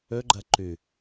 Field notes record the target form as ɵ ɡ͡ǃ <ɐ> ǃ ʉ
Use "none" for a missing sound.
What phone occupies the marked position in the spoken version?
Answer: ɐ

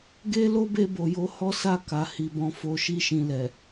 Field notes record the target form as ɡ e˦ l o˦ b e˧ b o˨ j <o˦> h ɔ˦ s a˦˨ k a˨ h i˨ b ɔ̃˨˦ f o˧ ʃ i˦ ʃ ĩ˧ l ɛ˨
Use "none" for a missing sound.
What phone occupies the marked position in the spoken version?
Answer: o˨˦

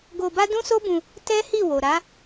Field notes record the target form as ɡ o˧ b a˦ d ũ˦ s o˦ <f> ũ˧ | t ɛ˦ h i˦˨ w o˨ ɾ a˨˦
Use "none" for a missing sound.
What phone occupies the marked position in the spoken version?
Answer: b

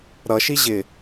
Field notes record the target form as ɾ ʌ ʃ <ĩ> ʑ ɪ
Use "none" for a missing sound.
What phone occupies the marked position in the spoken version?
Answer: i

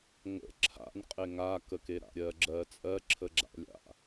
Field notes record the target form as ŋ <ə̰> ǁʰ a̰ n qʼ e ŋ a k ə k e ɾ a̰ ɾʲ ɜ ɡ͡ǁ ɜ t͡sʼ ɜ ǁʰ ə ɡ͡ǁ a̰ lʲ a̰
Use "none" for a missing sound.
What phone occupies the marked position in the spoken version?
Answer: ə̰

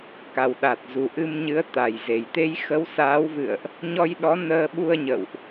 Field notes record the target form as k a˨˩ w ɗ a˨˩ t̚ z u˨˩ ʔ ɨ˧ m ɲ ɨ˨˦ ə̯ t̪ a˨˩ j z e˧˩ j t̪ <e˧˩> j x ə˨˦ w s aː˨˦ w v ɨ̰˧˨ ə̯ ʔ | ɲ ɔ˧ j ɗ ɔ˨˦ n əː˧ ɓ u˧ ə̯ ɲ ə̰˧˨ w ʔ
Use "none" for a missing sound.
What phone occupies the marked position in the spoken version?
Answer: e˨˦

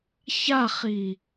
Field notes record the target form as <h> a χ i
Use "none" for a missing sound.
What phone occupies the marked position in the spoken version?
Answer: ç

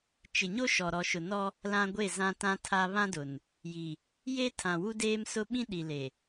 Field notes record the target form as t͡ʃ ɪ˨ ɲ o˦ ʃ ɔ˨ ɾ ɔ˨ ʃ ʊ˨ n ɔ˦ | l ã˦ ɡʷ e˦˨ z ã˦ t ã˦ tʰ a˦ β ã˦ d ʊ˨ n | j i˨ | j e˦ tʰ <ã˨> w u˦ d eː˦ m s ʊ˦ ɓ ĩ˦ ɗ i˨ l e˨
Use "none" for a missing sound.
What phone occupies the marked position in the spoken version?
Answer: ã˨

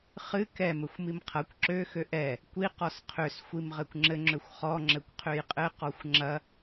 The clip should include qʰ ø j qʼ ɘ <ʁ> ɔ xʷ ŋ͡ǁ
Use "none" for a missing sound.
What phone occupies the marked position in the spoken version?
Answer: q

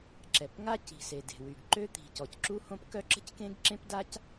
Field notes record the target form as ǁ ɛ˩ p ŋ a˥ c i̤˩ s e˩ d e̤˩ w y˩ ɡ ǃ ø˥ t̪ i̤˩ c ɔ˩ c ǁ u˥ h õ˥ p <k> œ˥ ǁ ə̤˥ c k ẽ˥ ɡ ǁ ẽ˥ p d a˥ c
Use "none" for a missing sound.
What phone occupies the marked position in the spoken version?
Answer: k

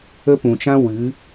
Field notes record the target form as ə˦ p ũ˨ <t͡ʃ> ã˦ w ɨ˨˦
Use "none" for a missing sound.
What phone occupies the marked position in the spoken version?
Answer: t͡ʃ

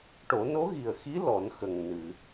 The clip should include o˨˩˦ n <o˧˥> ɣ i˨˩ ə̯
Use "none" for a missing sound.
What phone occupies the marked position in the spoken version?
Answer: o˧˥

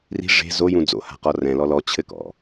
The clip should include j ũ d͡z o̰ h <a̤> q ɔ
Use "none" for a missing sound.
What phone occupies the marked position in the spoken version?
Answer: a̤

